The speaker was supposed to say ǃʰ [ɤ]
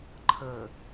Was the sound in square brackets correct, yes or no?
yes